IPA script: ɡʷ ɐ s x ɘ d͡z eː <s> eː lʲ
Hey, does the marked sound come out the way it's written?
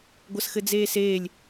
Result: yes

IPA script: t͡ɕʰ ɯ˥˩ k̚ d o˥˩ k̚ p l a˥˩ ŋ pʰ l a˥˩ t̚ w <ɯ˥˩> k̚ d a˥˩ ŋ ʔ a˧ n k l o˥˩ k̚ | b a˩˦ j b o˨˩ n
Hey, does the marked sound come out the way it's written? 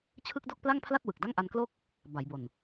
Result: no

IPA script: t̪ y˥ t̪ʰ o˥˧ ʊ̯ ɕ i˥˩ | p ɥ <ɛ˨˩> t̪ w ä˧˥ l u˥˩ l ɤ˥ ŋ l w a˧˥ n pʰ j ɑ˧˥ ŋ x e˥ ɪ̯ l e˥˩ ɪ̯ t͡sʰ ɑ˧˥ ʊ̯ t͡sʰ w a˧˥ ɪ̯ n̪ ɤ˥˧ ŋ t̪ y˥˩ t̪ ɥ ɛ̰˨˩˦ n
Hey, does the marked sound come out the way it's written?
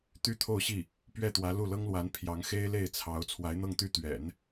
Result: no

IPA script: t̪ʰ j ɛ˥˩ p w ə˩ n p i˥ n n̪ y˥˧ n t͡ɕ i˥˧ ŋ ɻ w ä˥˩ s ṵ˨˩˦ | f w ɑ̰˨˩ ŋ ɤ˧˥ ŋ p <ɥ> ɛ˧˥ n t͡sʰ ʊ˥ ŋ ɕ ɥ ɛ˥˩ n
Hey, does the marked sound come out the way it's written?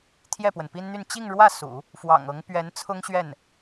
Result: yes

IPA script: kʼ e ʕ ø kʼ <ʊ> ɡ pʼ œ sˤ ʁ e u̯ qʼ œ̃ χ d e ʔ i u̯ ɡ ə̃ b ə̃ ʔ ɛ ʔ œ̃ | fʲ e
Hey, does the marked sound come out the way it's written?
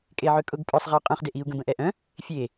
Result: yes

